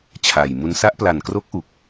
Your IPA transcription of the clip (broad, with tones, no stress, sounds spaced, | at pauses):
t͡ɕʰ a˨˩ j m u˦˥ n s a˦˥ ʔ p l a˨˩ n k r o˦˥ k̚ ʔ u˨˩ k̚